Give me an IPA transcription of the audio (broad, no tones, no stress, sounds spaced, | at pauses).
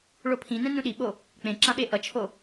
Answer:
ɭ o pʰ ĩ n ɛ̃ n ũ ɗ i ɓ o | k͡p ẽ ǁ ã ɓ e ʔ ʌ t͡ʃʰ o